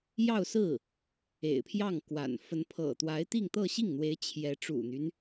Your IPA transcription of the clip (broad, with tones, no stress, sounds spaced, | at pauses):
j ɑ˥˧ ʊ̯ s ɹ̩˥˩ | ḛ˨˩ ɪ̯ pʰ j ɑ˥˩ ŋ k w a̰˨˩ n f ə˧˥ n pʰ ɤ̰˨˩ t̪ w a˧˥ ɪ̯ t̪ i˥˧ ŋ t̪ ɤ˥˧ ɕ i˥˩ ŋ n̪ w e˧˥ ɪ̯ t͡ɕʰ j ɛ˧˥ ʈ͡ʂ ṵ˨˩ n̪ y˦ n